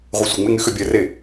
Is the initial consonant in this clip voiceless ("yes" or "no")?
no